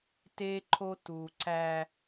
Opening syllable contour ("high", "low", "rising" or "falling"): high